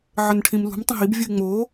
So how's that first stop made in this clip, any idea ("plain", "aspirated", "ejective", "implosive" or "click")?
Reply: aspirated